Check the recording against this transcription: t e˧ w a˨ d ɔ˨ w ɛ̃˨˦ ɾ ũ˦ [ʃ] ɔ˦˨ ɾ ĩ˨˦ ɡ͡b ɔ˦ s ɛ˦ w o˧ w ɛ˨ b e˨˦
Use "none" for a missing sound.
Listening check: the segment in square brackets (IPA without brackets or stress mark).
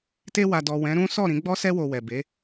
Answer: s